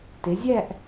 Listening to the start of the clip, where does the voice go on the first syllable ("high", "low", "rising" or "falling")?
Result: rising